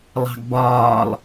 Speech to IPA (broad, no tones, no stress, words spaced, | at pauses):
lˠɑ̤ɡbɒːlˠ